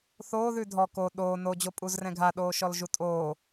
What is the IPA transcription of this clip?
θ oː ð ʉ dʱ ɔ k o ɗ oː n o d͡ʑ o pʼ u z r ɛ̃ ɡʱ a ɗ oː ʃ ɔ l ʒ u tʼ oː

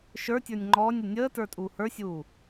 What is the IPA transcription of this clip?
ʃ ə˞ tʲ ə˞ nʲ ŋ͡ǃ ɔː nʲ ə nʲ əː t ə˞ tʼ uː h ə˞ sʲ uː

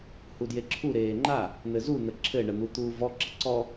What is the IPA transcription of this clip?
h u d j e ǁʰ u ɾ eː ŋ͡ǃ a | n̪ ɘ z u n̪ ə ǁʰ ɘ ɳ ə n̪ u t̪ uː v ɔ ǁ ə ǀ ɔ

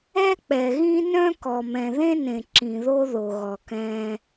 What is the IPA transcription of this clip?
ɛ˦ k͡p ɛ˨ ɣ ĩ˦ n œ̃˦ k ɔ˨ m ɛ̃˨ ð ẽ˦ n ẽ˨ ǁ ĩ˨ ð o˦ ð o˨ ɣ ɔ˨ k ɛ̃ː˦

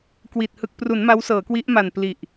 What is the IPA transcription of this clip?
k w i˨˩ t̚ h ɯ˨˩ k̚ p r u˩˦ n m a˦˥ w s ɤː˩˦ k w i˦˥ ʔ m a˨˩ n p l i˨˩ ʔ

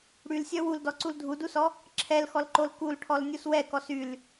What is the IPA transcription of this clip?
ɽ y l sʲ œ w u l d ɔ ǀ u l dʱ u d u s ɔ | ǁʰ ɛ l x ɔ l ǃ o l k u l ʈʰ ɔ l nʲ u s w ɛ k ɔ s y l

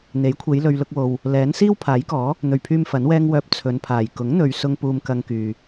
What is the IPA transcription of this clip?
n̪ e˨˥ j kʷʰ e˨˧ j l ɵ˨ ɥ l ʊ˧ k̚ w o˨ w | l ɛː˨˥ n s iː˥ w pʰ aː˨˥ j k ɔː˨˥ | n̪ ɵ˨˩ ɥ pʰ yː˧ m f ɐ˨˥ n w ɛː˥ ŋ w œː˧ p̚ t͡sʰ ɵ˨˧ n pʰ aː˨˩ j k ʊ˨˥ ŋ n̪ ɵ˨ ɥ s ʊ˧ ŋ p uː˧ m k ɐ˧ ŋ k yː˨

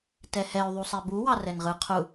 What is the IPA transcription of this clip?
t ɛ h ɛ y̯ ðˤ u sˤ ɛ b u w ɑ r ɛ n ʁ ɯ qʰ u

